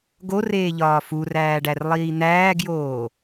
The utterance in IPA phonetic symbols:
ɡ o r eː ʎ ɒː f u r æː ɖ æ r lˠ iː n̪ æː ɡ j oː

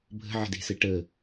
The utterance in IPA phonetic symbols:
bʱ ə̤ ʕ ə̤ d e̤ s ɘ ʈ əː

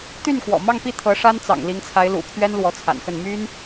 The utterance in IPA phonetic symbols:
t̪ y˥˩ n k w ɔ̰˨˩ m ɑ˥˧ ŋ p i˥˩ t̪ʰ ɤ˧˥ ʂ a˥ n t͡s ɑ̰˨˩ ŋ l i˧˥ ŋ t͡sʰ a˧˥ ɪ̯ l ṵ˨˩ pʰ ɥ ɛ˥ n l w ɔ˧˥ t͡sʰ a̰˨˩ n x ə˥˩ n m y˥ n

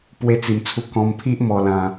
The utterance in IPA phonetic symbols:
p w e˥˧ t͡s i˧ m t͡sʰ u˦ k ɔ̃˧ m pʰ i˦ ʔ m ɔ˧ l ã˧

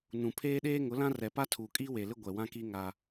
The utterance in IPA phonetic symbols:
n ũ˨ pʰ eː˦ ɗ eː˦ ŋ ʊ˨˦ l ã˦ r ɛ˨ p a˦ tʰ uː˨ kʼ iː˦ w e˨ l ɪ˦ ɡʷ ɛ˨ w ã˦ k iː˦ ŋ a˦

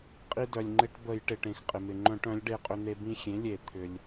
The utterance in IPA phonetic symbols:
qʼ i˧ d œ˩ lʲ ŋ͡ǃ ɪ˧˩˧ ʈ b ə˧˩˧ j ʈ ɪ˩ ʈ ẽ˩ x qʼ ɪ˩ m ɪ˩ ŋ͡ǃ œ̃˧˩˧ ʈ œ̃˩˥ lʲ ɖ e˧ qʼ ʏ˧ n̪ e˧ b ĩ˧ xʲ ẽ˩˥ lʲ e˧˩˧ t̪ʰ ʏ˩ lʲ

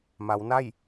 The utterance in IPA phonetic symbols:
m a˩˧ w n a˥˨ j

